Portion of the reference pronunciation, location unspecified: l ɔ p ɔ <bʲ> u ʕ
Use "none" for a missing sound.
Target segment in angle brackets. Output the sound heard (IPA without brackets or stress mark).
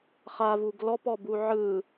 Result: b